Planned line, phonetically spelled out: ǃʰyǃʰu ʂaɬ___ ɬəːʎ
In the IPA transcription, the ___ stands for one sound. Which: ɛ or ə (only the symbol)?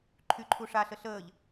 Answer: ə